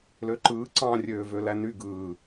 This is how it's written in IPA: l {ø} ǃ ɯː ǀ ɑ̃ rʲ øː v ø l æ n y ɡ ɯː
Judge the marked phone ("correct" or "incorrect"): correct